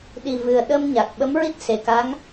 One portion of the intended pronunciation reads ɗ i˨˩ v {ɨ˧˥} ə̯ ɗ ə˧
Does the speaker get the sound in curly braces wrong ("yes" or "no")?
yes